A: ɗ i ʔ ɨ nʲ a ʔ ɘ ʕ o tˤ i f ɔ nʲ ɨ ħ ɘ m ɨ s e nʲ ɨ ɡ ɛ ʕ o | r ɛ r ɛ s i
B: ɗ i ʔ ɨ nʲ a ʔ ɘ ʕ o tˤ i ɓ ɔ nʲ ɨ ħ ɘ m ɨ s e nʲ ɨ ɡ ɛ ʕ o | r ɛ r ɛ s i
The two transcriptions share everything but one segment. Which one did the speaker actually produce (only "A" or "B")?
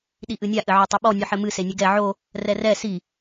B